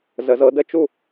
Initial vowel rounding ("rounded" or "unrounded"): unrounded